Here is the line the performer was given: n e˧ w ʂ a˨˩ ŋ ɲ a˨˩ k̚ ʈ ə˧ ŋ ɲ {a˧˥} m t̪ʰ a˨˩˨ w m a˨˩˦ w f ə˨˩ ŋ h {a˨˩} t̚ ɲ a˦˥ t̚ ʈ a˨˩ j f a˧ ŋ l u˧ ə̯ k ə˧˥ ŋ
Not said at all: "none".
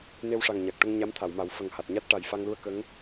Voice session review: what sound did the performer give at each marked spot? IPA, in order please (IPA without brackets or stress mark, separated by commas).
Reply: a˧˥, a˨˩